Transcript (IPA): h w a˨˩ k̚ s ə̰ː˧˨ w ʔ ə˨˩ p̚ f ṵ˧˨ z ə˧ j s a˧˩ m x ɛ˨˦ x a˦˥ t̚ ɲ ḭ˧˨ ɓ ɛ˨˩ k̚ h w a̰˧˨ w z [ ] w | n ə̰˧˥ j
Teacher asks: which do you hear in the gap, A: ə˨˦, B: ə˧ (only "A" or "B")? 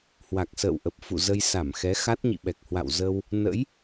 B